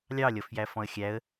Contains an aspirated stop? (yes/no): no